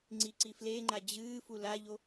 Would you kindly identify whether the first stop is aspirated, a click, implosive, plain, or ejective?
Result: click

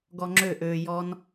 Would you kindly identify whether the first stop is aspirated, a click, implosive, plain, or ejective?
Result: plain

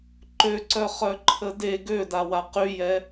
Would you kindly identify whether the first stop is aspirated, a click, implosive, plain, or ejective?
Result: click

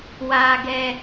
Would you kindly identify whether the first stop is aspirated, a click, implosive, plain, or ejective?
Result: plain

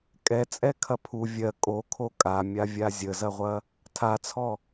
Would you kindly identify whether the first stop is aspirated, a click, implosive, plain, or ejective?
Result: ejective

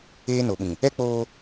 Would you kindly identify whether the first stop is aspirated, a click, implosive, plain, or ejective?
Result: implosive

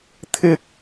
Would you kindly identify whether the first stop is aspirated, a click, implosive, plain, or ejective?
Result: aspirated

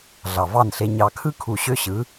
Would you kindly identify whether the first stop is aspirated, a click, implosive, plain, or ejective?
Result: aspirated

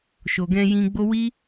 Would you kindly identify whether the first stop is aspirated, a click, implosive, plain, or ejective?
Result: plain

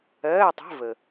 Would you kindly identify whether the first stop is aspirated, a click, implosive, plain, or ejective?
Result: plain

